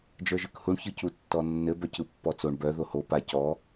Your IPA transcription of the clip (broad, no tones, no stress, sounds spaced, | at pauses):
d͡ʒ ə˞ ʒ ɯ k h u ɳ ç ɯ c u tː ɔ nː ɘ b œ c ɯ pː ɔ t͡s o ɳ b œ ð o h o p a c ɔ